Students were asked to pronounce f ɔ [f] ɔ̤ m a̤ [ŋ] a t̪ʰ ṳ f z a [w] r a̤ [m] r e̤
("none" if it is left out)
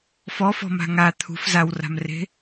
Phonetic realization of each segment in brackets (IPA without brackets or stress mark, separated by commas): f, ŋ, w, m